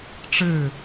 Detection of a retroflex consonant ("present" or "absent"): present